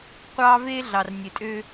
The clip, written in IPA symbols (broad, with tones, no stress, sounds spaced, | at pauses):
qʷ ɑː˦ v eː˦ ɮ ɑ˨ r nʲ e˨ tʼ ø˦